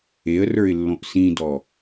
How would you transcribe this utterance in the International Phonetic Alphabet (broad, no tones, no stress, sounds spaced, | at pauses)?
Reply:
e ə̯ r ə˞ ɪ̯ lː õ ʔ s ĩ d ɔ